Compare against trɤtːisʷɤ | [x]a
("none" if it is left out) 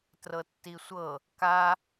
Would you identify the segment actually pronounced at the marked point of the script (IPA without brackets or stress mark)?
k